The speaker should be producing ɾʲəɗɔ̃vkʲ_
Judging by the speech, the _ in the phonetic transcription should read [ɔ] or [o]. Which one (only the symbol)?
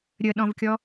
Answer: ɔ